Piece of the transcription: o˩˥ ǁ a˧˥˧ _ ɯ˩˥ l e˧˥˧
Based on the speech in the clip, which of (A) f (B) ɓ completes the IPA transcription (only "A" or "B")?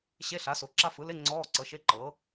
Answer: A